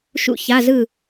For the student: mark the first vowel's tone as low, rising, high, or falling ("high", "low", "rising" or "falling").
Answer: falling